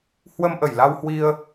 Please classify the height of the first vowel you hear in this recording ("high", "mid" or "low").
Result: mid